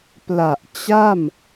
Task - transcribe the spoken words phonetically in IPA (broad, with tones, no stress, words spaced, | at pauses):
pla˨˩ʔ t͡ɕa˥˩m